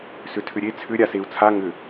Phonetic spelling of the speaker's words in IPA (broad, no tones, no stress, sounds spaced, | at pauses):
s ʏ tʰ ʏ ɾʲ e t͡sʰ ʏ ɾʲ a s e u̯ t͡sʰ a ŋ ʏ